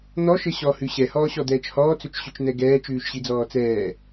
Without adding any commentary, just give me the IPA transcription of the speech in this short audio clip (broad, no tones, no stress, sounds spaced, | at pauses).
n̪ ɔ ʃ ɘ ɕ ɔ h ʉ ɕ ɛ h ɔː ɕ ɔ d̪ ɛː t͡ʃ h ɔː t͡s ɵ t͡ʃ ɕ ʉ t͡ʃ n̪ ɛ ɡ ɛː t͡ʃ ʉː ʃ ɕ i d͡z ɔː t͡s ɛː